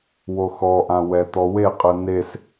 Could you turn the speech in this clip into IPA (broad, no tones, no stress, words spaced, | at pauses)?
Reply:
woxɔʔãwɛ t̪ɔweqʼɯ nes